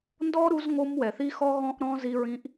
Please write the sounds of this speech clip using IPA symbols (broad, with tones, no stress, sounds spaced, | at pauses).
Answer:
n d ɔ˥ ɾ u˦ z ŋ o˦ m w ɛ˨ θ i˥ x ɔ˥ ɣ ɔ̃˥ ʔ ɾ ɔ̃˥ z i˦ ɹ ĩ˦ ʔ